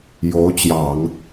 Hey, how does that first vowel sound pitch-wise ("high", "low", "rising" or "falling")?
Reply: rising